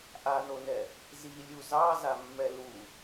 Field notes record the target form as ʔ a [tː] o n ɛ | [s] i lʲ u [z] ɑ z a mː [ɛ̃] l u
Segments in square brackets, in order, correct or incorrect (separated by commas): incorrect, incorrect, correct, incorrect